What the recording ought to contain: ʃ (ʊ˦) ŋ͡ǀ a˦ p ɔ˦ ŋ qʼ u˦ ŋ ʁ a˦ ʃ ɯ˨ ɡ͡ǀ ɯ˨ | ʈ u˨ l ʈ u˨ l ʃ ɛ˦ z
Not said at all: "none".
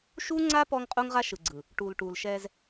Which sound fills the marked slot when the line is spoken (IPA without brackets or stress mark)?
u˦